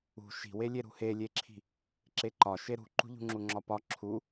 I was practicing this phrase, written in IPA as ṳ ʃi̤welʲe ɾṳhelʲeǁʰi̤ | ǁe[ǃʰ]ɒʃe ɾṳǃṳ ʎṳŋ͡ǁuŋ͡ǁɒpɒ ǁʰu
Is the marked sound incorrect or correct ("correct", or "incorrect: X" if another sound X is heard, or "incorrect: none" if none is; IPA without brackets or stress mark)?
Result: incorrect: ǃ